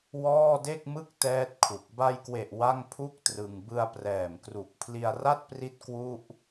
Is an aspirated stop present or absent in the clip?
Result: present